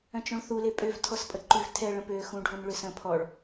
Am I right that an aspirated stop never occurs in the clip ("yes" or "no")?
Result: no